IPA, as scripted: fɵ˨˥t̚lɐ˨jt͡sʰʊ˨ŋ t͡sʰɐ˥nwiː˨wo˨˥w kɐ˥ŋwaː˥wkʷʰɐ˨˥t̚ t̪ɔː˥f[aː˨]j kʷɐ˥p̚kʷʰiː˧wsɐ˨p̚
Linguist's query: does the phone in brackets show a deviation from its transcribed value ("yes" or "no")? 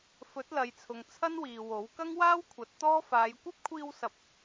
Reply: yes